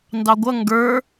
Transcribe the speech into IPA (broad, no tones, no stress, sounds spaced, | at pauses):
n d ɑ ɡʷ ʌ ŋ ɡ ə˞